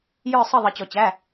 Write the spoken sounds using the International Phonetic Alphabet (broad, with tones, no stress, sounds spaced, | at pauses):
j ə˞˥˧ sˤ ə˥˧ ðˤ ʌ˧ t͡ɕ ɔ˧ t͡ɕ æ˧˥˧